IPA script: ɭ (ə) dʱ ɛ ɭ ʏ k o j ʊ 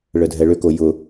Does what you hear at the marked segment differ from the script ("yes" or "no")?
no